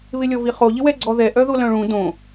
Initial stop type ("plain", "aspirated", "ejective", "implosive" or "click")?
click